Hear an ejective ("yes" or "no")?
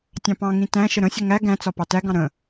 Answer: no